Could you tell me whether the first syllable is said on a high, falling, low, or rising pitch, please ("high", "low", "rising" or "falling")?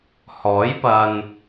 rising